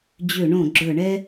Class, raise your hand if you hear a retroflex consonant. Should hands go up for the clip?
yes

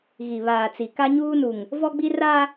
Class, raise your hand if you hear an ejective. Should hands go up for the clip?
no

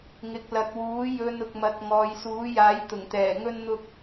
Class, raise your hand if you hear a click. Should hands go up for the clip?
no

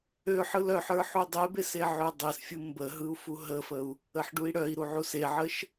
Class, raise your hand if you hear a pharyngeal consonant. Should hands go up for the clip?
yes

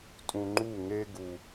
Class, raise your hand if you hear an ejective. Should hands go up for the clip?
yes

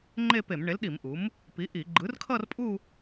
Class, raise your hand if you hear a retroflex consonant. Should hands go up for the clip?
yes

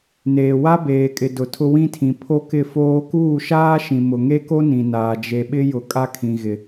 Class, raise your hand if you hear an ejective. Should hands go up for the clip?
yes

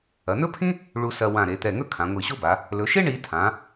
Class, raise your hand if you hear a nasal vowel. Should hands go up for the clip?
yes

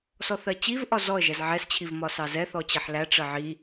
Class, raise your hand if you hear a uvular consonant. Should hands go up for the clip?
no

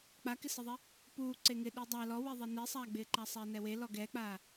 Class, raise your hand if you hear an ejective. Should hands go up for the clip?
no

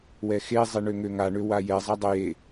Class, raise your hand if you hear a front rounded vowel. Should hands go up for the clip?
yes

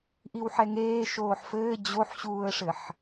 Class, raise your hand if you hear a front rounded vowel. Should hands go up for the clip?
no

